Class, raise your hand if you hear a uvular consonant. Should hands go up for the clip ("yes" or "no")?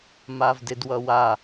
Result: no